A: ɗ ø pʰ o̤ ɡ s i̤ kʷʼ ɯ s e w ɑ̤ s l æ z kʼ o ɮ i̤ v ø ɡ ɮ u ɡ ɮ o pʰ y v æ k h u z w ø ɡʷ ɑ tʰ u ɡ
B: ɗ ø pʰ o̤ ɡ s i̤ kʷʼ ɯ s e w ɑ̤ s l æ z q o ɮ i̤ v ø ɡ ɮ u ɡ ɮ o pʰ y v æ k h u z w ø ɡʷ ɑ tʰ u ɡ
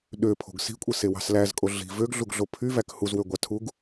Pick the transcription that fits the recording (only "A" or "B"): A